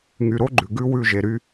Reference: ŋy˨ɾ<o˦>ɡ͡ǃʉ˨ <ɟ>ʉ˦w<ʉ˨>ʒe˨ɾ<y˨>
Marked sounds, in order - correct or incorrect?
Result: correct, incorrect, incorrect, incorrect

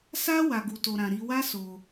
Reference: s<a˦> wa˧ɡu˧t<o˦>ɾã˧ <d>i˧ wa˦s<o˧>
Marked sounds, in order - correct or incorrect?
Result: correct, incorrect, incorrect, correct

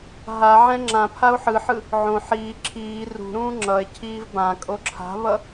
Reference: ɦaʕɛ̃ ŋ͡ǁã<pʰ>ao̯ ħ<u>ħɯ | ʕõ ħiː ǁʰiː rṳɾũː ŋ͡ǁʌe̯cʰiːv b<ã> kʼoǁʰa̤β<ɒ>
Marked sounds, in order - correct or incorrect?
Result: correct, incorrect, correct, incorrect

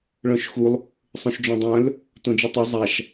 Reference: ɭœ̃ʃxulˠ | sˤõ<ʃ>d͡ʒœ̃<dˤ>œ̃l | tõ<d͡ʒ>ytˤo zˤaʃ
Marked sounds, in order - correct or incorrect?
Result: correct, correct, correct

